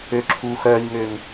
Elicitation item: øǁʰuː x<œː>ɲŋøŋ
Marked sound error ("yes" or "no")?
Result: no